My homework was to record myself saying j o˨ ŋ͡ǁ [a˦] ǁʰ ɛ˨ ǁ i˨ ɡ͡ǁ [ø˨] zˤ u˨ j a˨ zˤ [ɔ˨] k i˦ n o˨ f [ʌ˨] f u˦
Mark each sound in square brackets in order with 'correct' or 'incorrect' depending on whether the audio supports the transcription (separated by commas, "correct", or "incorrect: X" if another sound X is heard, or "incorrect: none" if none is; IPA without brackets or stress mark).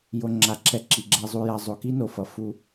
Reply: incorrect: a˨, incorrect: ɛ˨, incorrect: o˨, correct